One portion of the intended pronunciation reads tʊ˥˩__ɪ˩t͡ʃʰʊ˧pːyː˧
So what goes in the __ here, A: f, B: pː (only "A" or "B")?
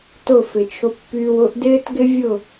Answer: A